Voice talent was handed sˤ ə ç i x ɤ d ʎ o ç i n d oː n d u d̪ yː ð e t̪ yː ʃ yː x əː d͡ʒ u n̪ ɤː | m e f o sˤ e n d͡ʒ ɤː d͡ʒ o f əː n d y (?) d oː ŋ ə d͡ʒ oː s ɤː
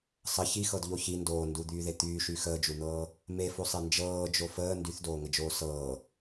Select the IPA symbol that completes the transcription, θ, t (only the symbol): θ